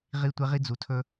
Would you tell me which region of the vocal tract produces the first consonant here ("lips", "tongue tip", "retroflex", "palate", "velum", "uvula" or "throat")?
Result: uvula